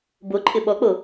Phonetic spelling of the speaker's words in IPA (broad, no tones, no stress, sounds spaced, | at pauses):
b o ǃʼ ɪ ɓ ɔ k͡p o